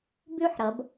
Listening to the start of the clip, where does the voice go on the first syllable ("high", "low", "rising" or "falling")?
falling